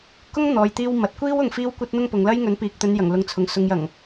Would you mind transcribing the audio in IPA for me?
k ʊ˥ ŋ n̪ ɔː˨ j t̪ iː˧ w m ɐ˨ t̚ kʷ iː˥ w ʊ˧ ŋ f iː˥ w kʷ ɐ˥ t̚ n̪ ʊ˥ ŋ p ʊ˨˧ ŋ l ɐ˥ j ŋ ɵ˨˥ n p iː˨ k̚ t̪ ɵ˨˧ n j ɐ˨˩ ŋ l ʊ˨˥ ŋ t͡sʰ ʊ˨ ŋ s ʊ˨ ŋ j ɐ˨˩ ŋ

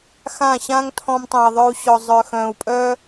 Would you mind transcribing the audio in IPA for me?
x ã˦˨ ɕ ãː˦ ŋ tʰ ɔ̃˧ m tˤ ɛ̃˨ i̯ ðˤ œ˧ u̯ ɕ ɔ˨ zˤ œ˨ x œ̃ː˨ u̯ pʼ œː˦

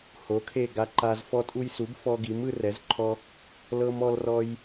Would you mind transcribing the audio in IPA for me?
h o˨˥ kʰ e˦˨ ɡ a˦˨ ǃ a˦ z f ɔ˦ tʼ u˦ j s u˨˥ b f ɔ˦ ɡ i˨˥ m ɯ˦ r ɛ˨˥ z ǃʰ ɔ˦ | l ɤ˦ m ɔ˦ l r ɔ˦ j

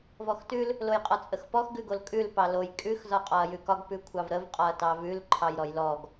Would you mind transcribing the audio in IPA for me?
v ɔ x t ʉ l | l o j qʼ ɒ t͡sʼ ə x p ɔ x ɡ ʉ ɡ o l kʼ ʉ l p ɑ l o j kʼ ʉ x z ɒ qʼ ɒ ɐ̯ j ʉ k ɒ ɡ p ʉ kʷʰ ɑ v ɾ ə v qʼ ɒ ɐ̯ t ɑ v ʉ l ǃʰ ɑ j ɾ ɔ j l ɔ ɡ

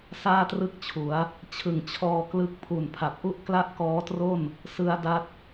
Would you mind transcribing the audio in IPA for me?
s aː˥˩ t r ɯ˥˩ k̚ t͡ɕʰ u˩˦ a̯ | t͡ɕʰ ɯ˨˩ ŋ t͡ɕʰ ɔː˧ k l ɯ˦˥ k̚ pʰ u˨˩ n pʰ a˨˩ p̚ ʔ u˥˩ ʔ k l a˥˩ ʔ k ɔː˦˥ t r o˥˩ n | s ɯ˦˥ a̯ d a˦˥ t̚

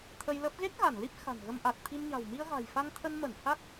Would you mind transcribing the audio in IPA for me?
t̪ʰ ə˧ j l ə˦˥ p̚ ɣ e˦˥ k̚ ɣ a˧˩ n l i˦˥ p̚ x a̤˨˩ n ɣ ə˧ m ʔ a˨˩ t̚ t̪ʰ i˧ m ɲ a̤˨˩ w m i˧ ə̯ ɣ a̤˨˩ j f a˧ ŋ t̪ʰ ə˧ n m ə˧˩ n h a˦˥ k̚

